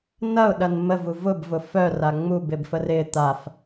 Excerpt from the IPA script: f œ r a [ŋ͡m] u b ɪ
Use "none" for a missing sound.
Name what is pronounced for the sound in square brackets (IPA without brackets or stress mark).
ŋ͡m